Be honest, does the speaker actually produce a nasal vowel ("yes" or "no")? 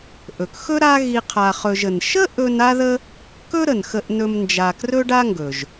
no